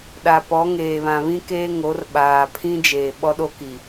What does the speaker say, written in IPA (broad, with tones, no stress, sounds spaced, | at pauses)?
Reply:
ɗ a˨ p ɔ˨˦ ŋ eː˨ β ã˨ β ĩ˦ k eː˦ ŋ o˨˦ r ɓ aː˨ pʰ ĩ˦ d͡ʒ eː˨ ɓ ɔ˦ ɗ o˦ k i˨